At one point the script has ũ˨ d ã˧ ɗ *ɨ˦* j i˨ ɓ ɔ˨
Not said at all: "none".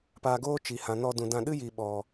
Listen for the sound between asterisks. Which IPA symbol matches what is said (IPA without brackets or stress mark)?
ɨ˦